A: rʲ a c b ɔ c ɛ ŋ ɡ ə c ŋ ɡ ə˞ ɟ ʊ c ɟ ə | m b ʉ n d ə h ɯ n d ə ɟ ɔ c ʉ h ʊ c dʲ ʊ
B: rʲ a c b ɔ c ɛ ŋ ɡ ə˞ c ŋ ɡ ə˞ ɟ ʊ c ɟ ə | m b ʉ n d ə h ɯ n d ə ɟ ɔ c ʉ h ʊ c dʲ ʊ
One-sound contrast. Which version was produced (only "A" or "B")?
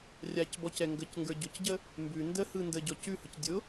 A